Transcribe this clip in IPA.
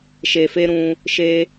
ʃ e˨ f e˧ ɾ ũ˧ | ʃ e˧

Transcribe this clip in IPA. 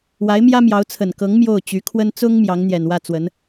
w a˧˥ ɪ̯ m j ä˥ m j ɑ˧˥ ʊ̯ t͡sʰ ə˨˩ n k ɤ˧˥ ŋ m j o˥˩ ʊ̯ t͡ɕ y˧˥ kʰ w ə˥ n t͡s ʊ˥ ŋ m j ɑ˧˥ ŋ n̪ j ɛ˨˩ n w ä˥˩ t͡s w ə˧˥ n

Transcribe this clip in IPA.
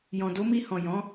j ɔ̃˨ d o˨˦ m i˧ h ɔ̃˨ j ɔ̃˨˦

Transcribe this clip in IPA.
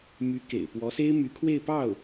m y˧˥ k ḛ˨˩ ɪ̯ p w ɔ˧˥ s e˥ ɪ̯ m y˧˥ kʰ w e˥˧ ɪ̯ p ɑ˥˩ ʊ̯

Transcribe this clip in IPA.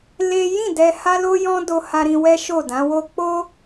l e˦ j ĩ˦˨ d ɛ˧ h a˦ l o˦ j ɔ̃˦ d o˧ h a˧ ɾ ĩ˧ w ɛ˦ ʃ o˦˨ d ã˨˦ w o˧ k͡p o˦

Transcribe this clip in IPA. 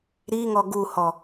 ɾ i ŋ ɔ ɡ u h ɔ

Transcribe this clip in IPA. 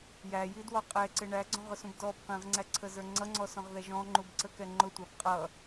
j æ j i d w ɔ qʼ ɛ ǀ ɪ ɳ æ ɡ͡ǀ ɔ̃ ʁ ʊ s ũ b d ɔ b q ĩ ʁ ŋ͡ǀ æ ǀʰ ə z ə˞ ŋ͡ǀ ʌ ŋ͡ǀ ɔ s ɔ̃ ʁ ð ɛ ʒ ɔ̃ ŋ͡ǃ u b ǀ ə k ɛ ŋ͡ǃ ʊ tʷ ɑ b qʼ ʌ

